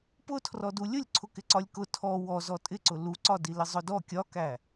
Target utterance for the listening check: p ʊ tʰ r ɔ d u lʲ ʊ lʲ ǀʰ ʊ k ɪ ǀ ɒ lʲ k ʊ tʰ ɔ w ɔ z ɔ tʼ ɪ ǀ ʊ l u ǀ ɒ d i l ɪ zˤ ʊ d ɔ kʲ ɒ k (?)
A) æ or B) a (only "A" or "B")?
A